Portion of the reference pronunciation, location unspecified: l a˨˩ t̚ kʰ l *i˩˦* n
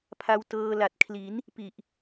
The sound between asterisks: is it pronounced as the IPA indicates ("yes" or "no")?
yes